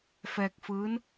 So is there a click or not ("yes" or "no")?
no